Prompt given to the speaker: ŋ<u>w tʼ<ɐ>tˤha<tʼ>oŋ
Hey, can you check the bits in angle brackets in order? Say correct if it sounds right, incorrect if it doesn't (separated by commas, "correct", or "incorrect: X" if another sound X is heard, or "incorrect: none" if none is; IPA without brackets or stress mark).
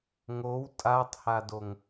incorrect: o, incorrect: a, incorrect: d